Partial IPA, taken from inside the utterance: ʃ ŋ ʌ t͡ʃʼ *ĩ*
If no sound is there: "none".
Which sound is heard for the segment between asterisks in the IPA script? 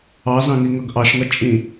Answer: ĩ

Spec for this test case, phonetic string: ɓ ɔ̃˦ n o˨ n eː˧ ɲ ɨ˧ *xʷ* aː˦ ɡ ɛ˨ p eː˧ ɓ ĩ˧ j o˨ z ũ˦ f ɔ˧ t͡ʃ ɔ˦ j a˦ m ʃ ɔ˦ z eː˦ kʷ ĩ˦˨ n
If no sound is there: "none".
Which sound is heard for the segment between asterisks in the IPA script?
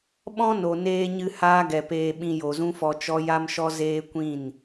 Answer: h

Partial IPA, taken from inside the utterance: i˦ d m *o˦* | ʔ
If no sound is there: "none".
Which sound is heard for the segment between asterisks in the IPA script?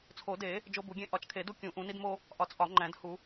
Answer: o˦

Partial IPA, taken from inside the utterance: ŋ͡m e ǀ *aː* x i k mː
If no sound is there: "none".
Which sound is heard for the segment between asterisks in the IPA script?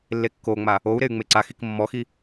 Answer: a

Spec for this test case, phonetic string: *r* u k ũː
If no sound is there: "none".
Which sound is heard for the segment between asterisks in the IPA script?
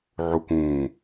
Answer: ʕ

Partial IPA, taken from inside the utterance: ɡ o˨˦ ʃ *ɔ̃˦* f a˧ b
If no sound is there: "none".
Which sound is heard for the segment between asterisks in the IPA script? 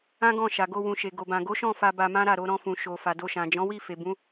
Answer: ɔ̃˦˨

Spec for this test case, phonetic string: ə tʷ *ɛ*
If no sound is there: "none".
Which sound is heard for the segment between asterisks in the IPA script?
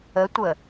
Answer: ə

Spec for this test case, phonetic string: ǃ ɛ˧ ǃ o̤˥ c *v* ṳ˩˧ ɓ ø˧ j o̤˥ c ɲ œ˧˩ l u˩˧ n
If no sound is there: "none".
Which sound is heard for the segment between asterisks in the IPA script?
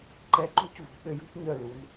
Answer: v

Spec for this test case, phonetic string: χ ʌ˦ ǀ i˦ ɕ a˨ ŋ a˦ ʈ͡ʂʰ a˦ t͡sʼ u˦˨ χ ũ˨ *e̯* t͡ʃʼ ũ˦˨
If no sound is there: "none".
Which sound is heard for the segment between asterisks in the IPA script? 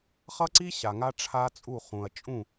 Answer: ɐ̯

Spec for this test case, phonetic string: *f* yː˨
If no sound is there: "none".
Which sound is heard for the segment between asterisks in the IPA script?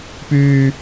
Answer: p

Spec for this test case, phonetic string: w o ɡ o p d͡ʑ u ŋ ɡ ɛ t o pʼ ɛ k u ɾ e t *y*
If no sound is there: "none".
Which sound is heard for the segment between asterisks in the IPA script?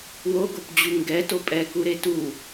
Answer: u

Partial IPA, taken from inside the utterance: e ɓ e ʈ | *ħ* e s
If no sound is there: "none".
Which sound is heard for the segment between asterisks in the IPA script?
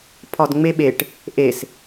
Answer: ʔ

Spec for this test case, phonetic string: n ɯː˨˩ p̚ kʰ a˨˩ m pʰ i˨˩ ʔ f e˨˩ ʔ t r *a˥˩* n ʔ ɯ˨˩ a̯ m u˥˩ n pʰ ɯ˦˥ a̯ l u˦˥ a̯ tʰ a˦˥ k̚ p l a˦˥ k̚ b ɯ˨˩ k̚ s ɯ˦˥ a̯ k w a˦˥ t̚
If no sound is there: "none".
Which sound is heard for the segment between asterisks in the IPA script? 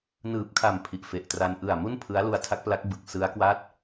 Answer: a˧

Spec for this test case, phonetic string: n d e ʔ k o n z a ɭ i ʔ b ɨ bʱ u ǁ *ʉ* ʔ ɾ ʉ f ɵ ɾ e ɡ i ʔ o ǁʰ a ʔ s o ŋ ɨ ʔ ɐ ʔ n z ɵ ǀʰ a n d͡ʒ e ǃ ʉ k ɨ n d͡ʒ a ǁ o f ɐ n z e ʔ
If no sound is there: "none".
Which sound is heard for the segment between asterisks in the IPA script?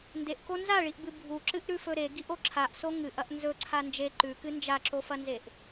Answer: ɨ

